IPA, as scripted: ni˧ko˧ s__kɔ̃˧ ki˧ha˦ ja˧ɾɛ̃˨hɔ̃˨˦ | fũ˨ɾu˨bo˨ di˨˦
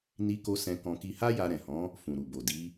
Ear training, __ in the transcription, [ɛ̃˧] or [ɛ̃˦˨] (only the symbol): ɛ̃˧